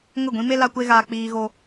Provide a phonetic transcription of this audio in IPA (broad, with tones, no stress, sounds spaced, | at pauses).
ŋ ə˦˨ ɡʷ ĩ˦ m e˦ l a˦ kʷ e˦ ɣ aː˧ k͡p iː˧ ɣ o˧